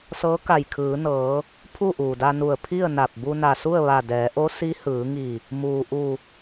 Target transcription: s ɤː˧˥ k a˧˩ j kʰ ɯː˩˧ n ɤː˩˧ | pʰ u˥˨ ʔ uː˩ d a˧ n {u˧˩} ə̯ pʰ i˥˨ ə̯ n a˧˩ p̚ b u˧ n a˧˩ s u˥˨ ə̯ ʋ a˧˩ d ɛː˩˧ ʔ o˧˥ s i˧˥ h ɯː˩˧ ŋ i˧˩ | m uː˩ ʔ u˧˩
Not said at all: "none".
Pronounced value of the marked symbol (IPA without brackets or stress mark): u˧˩